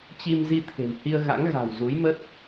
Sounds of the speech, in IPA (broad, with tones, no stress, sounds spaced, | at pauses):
t͡ɕ i˧ m z i˧ t̪ʰ e̤˨˩ m h i˧ ə̯ ɣ a̰˧˥ ŋ ɣ a̤˨˩ w z u˨˦ j m ə˦˥ t̚